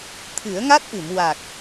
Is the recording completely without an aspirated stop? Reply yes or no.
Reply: no